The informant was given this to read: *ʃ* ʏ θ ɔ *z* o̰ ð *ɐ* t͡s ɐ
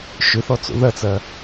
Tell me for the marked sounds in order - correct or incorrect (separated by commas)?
correct, incorrect, correct